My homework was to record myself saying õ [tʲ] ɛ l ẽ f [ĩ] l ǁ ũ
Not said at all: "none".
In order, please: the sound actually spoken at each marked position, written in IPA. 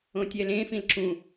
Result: tʲ, ĩ

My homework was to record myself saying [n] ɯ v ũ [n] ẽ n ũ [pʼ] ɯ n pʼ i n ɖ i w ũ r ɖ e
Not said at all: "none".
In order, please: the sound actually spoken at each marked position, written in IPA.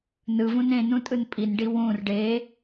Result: n, n, tʼ

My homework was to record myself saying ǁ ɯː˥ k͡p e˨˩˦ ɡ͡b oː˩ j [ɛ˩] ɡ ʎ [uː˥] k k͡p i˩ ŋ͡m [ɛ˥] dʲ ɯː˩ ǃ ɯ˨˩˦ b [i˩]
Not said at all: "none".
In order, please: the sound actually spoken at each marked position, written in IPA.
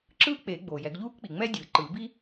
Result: ɛ˨˩˦, uː˥, ɛ˥, i˥

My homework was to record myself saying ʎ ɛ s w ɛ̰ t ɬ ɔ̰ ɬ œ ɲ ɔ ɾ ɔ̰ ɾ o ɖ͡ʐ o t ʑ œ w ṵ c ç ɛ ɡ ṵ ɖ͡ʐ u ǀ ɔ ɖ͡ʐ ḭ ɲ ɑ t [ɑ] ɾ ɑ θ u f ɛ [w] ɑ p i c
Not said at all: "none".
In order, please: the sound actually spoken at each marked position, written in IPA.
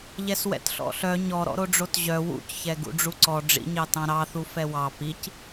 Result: ɑ̃, w

